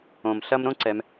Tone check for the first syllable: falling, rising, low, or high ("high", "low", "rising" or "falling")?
low